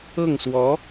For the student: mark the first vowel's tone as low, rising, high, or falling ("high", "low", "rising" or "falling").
falling